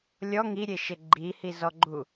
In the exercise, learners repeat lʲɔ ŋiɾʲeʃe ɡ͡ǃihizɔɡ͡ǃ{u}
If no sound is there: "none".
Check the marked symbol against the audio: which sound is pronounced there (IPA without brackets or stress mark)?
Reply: u